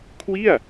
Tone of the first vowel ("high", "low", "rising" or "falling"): falling